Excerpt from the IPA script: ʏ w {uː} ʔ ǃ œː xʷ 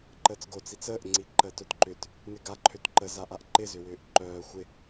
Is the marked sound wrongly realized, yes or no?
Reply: yes